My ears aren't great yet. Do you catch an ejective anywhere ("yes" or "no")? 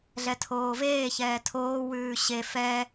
no